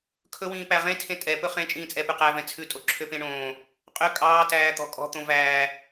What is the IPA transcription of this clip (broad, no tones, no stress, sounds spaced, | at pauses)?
kʰ ɵ w ĩː p æ ʁ ẽ tʰ ẽ tʼ ɛ p ɵ χ ẽ t͡ʃʼ ĩː t͡sʼ ɛ p ʉ q æ v ɛ̃ t͡sʰ ʉ tʼ o ǁʰ ø p ẽ ɳ õː | qʼ ø kʼ ɑː t æː t̪ ɔ̤ kʼ ɔ̤ t̪ õ v æː